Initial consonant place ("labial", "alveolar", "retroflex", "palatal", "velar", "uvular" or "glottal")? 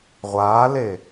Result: uvular